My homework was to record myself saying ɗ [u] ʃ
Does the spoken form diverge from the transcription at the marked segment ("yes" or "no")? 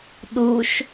no